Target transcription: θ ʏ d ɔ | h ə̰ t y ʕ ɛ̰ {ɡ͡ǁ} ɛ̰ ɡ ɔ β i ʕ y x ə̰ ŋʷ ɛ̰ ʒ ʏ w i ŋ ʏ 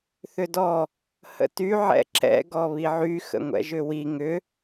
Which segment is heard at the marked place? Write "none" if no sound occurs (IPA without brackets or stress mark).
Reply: ǁ